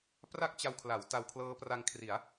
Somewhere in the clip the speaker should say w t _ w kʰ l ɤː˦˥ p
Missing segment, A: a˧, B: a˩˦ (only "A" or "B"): A